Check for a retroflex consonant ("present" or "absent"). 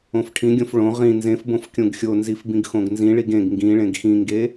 present